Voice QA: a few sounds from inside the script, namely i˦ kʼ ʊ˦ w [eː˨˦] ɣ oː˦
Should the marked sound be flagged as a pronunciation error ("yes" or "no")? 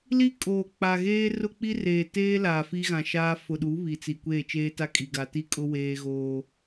yes